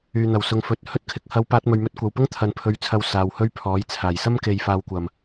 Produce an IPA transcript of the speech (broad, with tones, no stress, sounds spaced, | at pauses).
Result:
yː˨ n̪ ɐ˨˩ w s ʊ˨ ŋ f ɵ˨˥ t̚ h ɵ˧ t̚ kʰ ɪ˨˥ k̚ h ɐ˧ w p aː˧ t̚ m ɵ˨ ɥ m ɵ˧ t̚ kʷ ɐ˨ w p ʊ˥ ŋ t̪ʰ ɐ˨ n pʰ ɵ˨˧ ɥ t͡sʰ ɐ˨ w s aː˨ w h ɵ˥ ɥ pʰ ɔː˨˥ j t͡sʰ aː˨˩ j s ɐ˥ m k e˨ j f aː˨ w kʷ ɐ˨˩ m